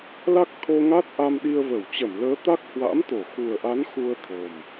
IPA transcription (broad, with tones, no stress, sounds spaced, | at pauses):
l a˦˥ k̚ t̪ʰ o˧ ŋ a˦˥ t̚ ʔ a˧ m ɗ i˧ ə̯ v ə˧˩ w t͡ɕ ə˧˩ m l əː˨˦ t̪ a˦˥ k̚ h w a̰˧˥ m t̪ o˧˩ x u˨˩ ə̯ ʔ a˨˦ n x u˧ ə̯ t̪ʰ o˨˩ m